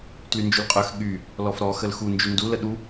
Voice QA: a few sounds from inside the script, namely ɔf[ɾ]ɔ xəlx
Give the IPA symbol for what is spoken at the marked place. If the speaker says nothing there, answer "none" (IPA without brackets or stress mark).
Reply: ɾ